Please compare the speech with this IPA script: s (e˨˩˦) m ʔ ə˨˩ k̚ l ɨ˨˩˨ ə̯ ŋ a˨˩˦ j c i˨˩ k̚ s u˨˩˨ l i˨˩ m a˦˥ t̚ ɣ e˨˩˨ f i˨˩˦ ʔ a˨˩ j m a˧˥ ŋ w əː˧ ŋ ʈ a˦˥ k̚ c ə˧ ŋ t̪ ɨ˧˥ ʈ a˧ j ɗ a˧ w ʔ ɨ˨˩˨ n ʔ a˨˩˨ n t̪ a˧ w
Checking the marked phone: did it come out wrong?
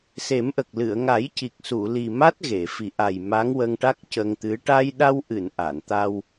no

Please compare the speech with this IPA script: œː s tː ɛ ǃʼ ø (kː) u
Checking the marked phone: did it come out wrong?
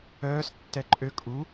yes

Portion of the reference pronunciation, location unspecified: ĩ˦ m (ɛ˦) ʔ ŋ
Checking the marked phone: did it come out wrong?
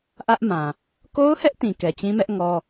no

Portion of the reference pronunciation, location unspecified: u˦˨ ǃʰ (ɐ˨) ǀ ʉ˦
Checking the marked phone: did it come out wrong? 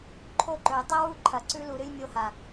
no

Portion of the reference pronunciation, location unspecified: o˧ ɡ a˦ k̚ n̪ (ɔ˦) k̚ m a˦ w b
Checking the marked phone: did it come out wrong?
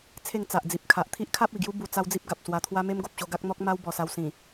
no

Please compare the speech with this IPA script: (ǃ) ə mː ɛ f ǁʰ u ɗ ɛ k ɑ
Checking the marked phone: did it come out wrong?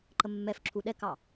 no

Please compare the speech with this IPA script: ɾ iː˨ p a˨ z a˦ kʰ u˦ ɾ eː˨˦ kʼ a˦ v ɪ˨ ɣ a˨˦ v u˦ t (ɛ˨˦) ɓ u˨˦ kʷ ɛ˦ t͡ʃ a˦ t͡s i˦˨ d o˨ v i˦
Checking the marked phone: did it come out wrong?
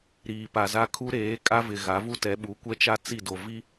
no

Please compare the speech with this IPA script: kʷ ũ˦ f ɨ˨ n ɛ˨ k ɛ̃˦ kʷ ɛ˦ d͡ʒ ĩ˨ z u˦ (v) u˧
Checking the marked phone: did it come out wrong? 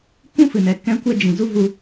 no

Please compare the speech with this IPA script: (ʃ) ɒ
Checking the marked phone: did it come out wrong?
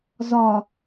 yes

